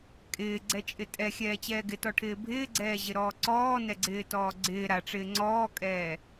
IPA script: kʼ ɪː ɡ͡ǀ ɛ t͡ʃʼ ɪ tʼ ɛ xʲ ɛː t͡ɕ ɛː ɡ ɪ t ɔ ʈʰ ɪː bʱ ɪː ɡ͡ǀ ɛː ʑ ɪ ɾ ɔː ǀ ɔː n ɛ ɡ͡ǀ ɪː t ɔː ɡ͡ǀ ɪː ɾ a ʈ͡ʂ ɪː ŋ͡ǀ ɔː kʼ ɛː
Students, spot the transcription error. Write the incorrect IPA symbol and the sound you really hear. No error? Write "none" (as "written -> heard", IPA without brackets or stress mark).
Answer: none